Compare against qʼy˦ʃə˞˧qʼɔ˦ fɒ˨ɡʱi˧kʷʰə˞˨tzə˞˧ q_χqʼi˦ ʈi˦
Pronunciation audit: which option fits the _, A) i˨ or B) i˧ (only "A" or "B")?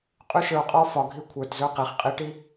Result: A